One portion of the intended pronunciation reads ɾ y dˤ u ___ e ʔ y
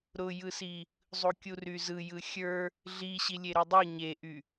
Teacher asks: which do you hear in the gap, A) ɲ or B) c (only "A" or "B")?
A